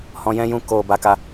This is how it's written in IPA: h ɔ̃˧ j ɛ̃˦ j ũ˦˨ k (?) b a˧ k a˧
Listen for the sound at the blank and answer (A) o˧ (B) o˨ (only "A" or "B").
B